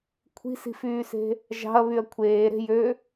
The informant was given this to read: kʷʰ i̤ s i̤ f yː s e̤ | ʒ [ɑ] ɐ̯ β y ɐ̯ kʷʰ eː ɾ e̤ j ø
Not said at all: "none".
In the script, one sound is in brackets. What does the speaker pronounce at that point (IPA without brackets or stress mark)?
ɑ̤